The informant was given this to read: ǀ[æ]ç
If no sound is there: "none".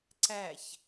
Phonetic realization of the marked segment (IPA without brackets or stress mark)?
æ